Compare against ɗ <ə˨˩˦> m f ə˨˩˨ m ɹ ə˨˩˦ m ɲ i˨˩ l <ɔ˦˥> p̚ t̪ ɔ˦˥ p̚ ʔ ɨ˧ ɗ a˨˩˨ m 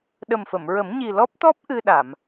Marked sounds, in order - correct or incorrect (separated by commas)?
incorrect, correct